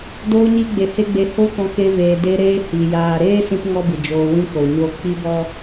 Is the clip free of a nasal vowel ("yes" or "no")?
no